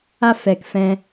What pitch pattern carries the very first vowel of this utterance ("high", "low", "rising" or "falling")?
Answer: high